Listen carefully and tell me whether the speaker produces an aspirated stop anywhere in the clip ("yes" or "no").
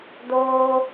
no